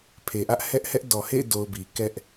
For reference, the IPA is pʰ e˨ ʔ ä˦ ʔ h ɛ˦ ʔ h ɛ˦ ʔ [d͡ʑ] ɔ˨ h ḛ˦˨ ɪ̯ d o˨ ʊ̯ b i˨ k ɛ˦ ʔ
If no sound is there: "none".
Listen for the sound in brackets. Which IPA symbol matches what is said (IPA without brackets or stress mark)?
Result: d